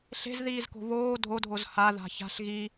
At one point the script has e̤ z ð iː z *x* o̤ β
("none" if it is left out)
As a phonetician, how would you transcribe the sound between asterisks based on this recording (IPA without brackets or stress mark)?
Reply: k